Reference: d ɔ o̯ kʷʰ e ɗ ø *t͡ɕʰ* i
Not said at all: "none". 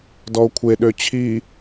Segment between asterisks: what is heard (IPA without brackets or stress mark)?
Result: t͡ɕʰ